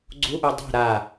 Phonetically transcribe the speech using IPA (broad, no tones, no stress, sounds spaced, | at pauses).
ɡ͡ǀ u ʔ u dˤ ɛ̤ ɾ a